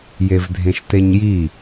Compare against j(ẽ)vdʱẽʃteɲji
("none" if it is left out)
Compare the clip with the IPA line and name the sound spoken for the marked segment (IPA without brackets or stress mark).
e